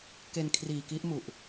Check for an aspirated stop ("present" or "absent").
present